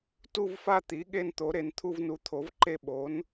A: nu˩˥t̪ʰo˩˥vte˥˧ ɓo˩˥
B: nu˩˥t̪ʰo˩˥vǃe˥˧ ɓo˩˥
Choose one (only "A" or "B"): B